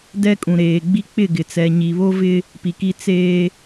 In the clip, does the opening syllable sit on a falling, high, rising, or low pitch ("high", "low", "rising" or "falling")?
high